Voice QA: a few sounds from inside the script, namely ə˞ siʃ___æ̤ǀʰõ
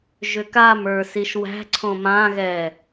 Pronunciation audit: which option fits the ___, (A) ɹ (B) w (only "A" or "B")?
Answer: B